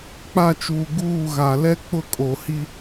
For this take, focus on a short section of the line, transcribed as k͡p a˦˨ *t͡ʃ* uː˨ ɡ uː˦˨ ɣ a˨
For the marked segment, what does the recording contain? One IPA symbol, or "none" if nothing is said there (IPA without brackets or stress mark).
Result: t͡ʃ